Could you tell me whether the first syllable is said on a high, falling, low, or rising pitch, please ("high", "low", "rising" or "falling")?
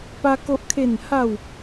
high